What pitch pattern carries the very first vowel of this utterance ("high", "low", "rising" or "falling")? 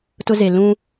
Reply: high